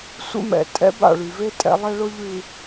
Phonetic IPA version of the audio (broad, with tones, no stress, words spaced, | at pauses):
sʷḛ˦mɛ̰˨ tʼɛ̰˦ba̰˦˨ɭy˨ve˦ tʼɛ̰˦lˠɛ˦ɭʊ˦ ʎʉ˨